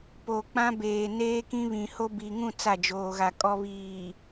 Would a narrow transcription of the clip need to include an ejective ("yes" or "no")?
yes